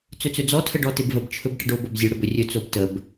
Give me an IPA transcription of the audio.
t͡sɵt͡sɵd͡zɔ tʰəɖɔtɪbvəb t͡ʃʰɵbʈəɖo bobzʲɵ ɽəbɵrʲɵ t͡sobtəb

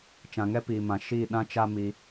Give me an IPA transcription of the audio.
t͡ʃã˨ŋɛ˦piː˨mã˨ ʃi˦˨ ɗã˦t͡ʃa˦mi˧

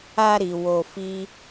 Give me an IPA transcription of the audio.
a˧ɾi˨ wo˧fi˦

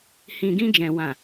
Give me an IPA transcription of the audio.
hĩ˨ɡĩ˧d͡ʒɛ̃˨ wã˨

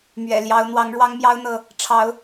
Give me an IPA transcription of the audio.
mɥɛ̰˨˩ljɑ˨˦ʊ̯ n̪wɑ˨˦ŋɻwɑ˦ŋmjɑ˦ʊ̯ n̪ɤ˥˨ | ʈ͡ʂʰɑ˨˦ʊ̯

